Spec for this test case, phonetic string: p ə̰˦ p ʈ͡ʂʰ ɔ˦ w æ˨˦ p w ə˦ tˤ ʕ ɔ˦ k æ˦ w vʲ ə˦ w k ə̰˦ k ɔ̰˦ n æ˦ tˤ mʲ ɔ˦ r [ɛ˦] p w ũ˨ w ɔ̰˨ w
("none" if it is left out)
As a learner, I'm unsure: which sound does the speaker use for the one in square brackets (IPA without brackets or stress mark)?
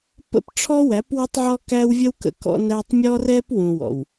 ɛ˦